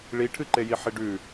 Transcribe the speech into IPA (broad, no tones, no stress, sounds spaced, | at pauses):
ɭ i ʈʰ ɨ ǃ e j i ħ i ɖ ʉ